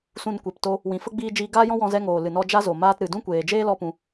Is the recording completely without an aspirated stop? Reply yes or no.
yes